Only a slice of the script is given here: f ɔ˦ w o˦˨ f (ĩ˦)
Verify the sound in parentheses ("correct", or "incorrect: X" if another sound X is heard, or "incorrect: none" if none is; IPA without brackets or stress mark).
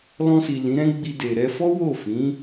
incorrect: ĩ˨˦